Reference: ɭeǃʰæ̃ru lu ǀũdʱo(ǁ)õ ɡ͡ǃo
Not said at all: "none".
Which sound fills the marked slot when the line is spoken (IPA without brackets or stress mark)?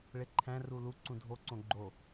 ǀ